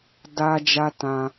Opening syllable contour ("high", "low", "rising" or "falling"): high